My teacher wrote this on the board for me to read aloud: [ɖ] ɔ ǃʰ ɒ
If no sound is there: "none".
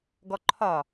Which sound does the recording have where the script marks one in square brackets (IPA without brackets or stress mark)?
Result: ɡ